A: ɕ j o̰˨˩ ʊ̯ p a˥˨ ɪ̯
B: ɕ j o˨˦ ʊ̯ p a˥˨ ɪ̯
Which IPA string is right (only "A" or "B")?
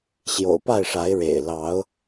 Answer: A